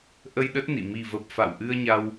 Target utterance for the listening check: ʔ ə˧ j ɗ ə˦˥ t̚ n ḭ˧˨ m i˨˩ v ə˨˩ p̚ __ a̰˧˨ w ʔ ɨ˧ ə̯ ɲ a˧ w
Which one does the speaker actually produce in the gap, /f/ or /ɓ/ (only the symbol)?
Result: f